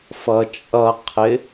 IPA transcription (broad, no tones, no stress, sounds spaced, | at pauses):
f ʌ t͡ʃʼ ʌ qʰ ɪ